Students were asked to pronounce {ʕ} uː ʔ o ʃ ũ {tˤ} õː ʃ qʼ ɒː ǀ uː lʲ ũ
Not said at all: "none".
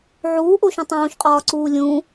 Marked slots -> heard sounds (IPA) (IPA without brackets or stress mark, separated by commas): ʕ, tˤ